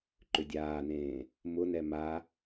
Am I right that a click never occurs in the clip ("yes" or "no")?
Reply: no